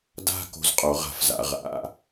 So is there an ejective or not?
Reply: yes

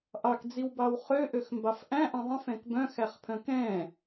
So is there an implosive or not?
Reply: no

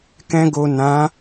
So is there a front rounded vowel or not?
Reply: no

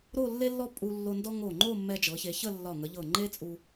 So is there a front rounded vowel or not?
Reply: no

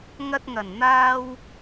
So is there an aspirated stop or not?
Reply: no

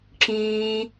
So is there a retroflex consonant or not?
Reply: yes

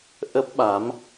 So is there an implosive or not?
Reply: yes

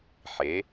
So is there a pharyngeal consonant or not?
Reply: yes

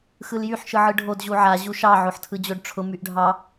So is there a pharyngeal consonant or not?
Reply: yes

